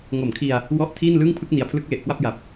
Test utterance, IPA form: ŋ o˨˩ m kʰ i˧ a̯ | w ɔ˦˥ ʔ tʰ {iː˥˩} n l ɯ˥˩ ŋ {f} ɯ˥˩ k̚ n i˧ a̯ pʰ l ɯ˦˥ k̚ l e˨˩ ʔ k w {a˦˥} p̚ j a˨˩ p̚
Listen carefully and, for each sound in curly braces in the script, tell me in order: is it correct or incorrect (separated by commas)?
correct, incorrect, incorrect